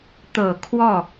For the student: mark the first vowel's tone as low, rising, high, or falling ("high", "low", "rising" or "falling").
low